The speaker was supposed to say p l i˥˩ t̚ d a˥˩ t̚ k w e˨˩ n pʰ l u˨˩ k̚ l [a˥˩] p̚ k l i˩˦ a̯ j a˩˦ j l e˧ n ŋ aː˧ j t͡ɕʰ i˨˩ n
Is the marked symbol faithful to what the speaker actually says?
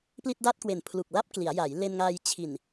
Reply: yes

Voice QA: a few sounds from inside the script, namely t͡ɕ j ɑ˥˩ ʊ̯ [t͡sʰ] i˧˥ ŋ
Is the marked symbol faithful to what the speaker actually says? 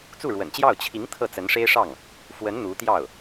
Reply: no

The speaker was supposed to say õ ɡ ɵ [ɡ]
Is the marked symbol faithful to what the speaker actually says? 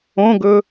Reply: no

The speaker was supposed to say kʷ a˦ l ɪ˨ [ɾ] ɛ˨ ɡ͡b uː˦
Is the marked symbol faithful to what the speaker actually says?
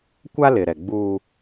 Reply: yes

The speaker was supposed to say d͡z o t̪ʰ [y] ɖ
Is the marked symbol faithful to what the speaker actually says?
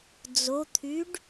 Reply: yes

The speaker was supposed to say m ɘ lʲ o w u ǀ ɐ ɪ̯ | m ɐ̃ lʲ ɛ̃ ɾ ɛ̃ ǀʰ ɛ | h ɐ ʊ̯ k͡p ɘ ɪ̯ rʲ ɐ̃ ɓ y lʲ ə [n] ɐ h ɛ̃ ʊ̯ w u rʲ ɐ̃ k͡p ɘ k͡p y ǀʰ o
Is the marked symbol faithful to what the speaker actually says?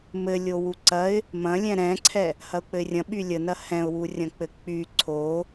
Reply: yes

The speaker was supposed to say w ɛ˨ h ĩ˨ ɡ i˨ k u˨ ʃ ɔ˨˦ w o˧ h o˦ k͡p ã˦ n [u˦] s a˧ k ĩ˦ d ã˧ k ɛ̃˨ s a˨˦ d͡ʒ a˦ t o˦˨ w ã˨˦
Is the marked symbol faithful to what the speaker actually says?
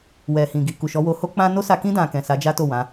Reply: no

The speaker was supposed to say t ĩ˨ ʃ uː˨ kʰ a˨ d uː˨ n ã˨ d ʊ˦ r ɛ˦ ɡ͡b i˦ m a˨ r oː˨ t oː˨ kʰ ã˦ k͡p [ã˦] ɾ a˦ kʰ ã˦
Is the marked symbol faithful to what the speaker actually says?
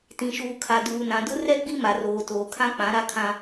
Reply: no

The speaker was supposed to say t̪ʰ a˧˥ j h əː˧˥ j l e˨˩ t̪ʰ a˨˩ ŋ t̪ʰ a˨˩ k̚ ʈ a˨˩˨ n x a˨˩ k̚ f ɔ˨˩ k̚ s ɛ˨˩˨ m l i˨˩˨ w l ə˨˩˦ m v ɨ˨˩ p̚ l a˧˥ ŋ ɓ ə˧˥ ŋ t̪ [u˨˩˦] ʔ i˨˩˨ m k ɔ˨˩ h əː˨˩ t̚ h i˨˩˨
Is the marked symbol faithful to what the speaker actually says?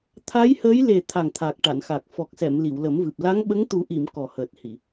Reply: yes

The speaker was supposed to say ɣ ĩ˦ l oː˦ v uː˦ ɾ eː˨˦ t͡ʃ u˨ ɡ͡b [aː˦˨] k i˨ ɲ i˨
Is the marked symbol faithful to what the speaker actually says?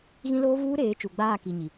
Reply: yes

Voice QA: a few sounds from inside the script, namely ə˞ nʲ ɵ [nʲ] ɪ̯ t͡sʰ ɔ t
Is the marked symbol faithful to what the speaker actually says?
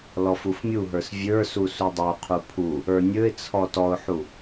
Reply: no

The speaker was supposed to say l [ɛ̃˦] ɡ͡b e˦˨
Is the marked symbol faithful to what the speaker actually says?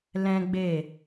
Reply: yes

